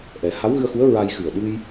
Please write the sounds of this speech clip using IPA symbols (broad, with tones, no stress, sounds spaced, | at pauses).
ʔ ɛ˨˩˦ h a˧˥ w ɣ ɨ˧ ə̯ x u˧˥ ə̯ ɹ a˧ j x ɨ˨˩ ə̯ ɗ ɨ˧ j